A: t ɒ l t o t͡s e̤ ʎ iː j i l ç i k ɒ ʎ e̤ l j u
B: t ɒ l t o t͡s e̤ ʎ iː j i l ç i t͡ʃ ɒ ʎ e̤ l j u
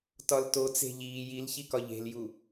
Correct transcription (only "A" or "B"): A